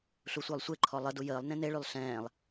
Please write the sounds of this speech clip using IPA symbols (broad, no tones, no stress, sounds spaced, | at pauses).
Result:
ɬ u sʷ əː lˠ sʷ e ǃʰ ɔ lˠ ə d u j əː lˠ n ẽ n e ɭ y lˠ ɬ ɛ̃ː lˠ